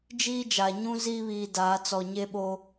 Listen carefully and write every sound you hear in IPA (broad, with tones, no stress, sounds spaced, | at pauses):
d͡ʒ iː˦ d͡ʒ a˨ ɲ ũ˦ z iː˦ β iː˨ d aː˨˦ t͡s ɔ˨ ɲ e˦ ɓ oː˦